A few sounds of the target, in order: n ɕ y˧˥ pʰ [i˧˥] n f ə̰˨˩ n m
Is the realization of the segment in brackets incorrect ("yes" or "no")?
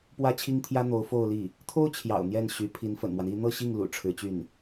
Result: no